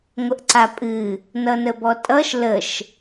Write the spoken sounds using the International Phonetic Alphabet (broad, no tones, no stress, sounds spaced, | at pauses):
ŋʷ ə ʔ ǀ a pʼ ɨ | n ʌ n ə b ɔ tʼ ʌ ʃ l ə ʃ